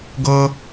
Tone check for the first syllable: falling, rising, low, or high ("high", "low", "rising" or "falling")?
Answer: high